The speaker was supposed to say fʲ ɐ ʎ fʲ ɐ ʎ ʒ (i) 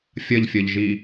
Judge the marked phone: correct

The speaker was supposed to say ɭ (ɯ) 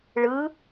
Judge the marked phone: correct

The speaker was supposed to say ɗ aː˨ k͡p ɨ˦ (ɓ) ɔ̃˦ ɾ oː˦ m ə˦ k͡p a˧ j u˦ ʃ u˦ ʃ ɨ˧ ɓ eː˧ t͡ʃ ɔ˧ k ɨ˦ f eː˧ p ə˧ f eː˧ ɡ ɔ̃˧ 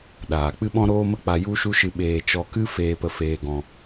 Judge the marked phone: correct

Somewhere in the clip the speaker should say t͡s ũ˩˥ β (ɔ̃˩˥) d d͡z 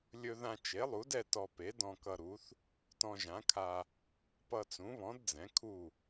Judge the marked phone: correct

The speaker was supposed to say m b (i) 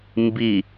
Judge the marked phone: correct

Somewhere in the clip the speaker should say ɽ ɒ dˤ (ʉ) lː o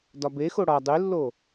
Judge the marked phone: correct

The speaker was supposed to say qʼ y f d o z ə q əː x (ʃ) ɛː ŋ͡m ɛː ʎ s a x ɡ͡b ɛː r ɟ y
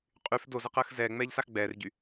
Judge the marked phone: incorrect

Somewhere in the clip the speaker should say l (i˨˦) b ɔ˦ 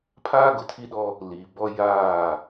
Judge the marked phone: incorrect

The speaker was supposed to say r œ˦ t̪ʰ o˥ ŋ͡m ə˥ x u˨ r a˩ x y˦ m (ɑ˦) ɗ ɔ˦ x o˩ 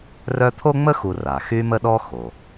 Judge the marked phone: incorrect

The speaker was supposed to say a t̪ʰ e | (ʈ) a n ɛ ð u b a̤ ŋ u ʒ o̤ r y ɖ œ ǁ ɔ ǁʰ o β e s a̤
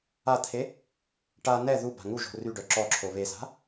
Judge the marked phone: correct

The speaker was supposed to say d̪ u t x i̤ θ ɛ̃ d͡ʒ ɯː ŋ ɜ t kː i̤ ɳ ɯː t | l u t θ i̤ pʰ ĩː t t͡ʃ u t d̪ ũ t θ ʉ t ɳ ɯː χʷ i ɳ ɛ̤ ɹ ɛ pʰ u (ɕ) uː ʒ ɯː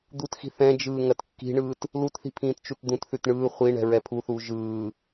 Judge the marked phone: incorrect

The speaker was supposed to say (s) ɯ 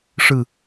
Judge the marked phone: incorrect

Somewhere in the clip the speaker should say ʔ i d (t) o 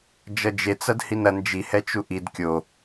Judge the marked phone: incorrect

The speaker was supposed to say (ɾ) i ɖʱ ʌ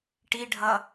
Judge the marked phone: incorrect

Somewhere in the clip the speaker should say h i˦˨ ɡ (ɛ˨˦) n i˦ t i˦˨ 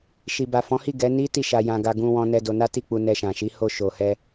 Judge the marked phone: correct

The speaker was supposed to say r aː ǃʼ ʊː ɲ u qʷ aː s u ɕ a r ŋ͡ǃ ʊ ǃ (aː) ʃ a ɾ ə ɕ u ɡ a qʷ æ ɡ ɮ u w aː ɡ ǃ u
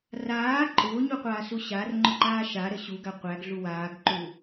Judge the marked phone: correct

